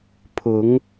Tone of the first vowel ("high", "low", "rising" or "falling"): rising